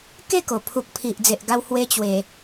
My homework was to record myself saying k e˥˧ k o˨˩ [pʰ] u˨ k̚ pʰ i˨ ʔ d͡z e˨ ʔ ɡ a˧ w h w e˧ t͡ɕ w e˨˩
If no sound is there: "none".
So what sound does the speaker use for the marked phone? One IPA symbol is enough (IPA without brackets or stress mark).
pʰ